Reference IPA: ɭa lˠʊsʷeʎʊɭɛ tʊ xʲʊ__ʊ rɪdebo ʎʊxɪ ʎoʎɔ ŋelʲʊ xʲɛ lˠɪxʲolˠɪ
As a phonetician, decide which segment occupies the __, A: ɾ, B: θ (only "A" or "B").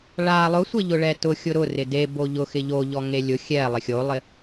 A